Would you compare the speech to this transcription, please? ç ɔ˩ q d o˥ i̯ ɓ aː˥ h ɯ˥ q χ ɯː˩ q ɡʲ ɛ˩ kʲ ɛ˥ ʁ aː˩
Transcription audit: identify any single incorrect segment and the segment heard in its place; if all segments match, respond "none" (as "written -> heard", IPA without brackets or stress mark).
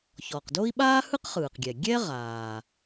kʲ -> ɡʲ